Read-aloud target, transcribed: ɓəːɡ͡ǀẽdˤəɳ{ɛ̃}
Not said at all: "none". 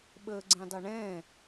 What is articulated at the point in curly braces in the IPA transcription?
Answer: ɛ̃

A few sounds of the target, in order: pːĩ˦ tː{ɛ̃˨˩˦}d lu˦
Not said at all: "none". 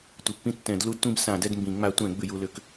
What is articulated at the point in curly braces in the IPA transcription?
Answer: ɛ̃˨˩˦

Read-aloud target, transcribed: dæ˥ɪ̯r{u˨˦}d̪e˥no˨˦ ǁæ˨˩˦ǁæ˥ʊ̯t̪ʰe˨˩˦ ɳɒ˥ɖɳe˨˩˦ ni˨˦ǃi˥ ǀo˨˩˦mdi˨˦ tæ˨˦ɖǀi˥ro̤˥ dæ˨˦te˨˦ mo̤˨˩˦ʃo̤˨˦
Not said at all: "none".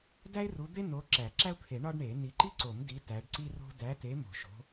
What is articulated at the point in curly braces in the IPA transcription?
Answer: u˨˦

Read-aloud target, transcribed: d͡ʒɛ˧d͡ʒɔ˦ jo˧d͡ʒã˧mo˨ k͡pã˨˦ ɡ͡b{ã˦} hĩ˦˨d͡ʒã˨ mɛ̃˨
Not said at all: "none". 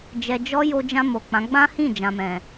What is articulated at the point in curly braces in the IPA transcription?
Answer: ã˦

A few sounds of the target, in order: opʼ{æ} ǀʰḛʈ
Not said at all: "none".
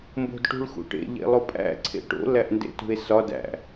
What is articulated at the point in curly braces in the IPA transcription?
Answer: æ̰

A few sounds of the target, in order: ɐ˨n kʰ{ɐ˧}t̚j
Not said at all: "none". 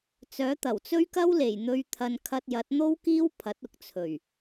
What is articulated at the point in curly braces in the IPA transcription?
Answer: ɐ˧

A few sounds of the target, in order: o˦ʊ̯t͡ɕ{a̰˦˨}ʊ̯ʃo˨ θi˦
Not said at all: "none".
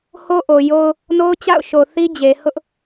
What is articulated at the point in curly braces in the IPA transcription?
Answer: a̰˦˨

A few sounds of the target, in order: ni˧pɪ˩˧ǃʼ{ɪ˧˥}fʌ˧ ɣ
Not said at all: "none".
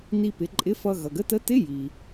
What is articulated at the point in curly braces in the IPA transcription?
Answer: ɪ˧˥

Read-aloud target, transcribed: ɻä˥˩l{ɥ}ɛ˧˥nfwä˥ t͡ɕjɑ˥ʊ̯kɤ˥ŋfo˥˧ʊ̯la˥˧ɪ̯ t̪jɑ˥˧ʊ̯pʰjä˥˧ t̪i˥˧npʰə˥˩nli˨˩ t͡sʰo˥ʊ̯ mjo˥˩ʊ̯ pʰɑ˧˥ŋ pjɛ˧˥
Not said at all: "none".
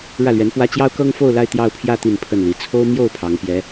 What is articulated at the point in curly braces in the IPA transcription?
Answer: ɥ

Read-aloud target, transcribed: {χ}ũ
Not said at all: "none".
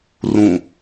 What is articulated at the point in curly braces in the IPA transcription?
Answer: r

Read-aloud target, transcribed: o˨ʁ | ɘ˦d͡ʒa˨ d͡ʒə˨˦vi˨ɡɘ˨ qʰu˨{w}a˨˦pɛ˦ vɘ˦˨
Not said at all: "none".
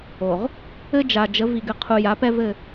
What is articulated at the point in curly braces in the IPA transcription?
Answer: j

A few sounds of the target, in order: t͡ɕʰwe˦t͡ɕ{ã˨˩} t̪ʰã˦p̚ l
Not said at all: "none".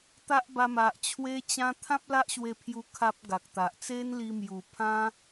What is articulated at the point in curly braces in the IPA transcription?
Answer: ã˦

